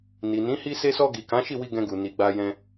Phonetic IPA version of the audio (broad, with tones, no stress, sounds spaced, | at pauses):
n i˨ n ĩ˨˦ h i˧ s e˧ s ɔ˧ ɡ i˨ k ã˨˦ ʃ i˦˨ w i˧ ɡ ɛ̃˧ ɡ u˨ n i˨ ɡ͡b a˧ j ɛ̃˧